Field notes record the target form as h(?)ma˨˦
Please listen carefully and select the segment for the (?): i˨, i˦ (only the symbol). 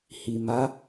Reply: i˨